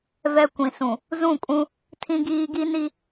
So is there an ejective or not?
yes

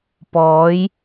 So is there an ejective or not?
no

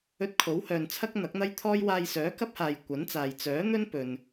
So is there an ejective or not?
no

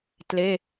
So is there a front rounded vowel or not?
no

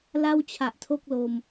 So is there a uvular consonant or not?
no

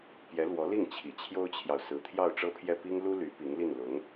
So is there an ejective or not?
no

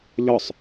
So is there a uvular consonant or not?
no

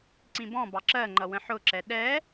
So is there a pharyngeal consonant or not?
yes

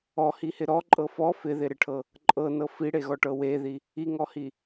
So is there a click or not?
yes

